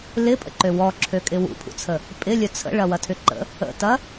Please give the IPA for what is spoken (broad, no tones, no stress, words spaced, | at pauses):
lɪpʼə̰ǃø wɔǁʰøkʼɪ wṵpʰṵt͡sʰə | pʼɪlʲœ t͡sʰə̰ɭɐwɐtʰʏ ǃə̰ | ə̰tɐ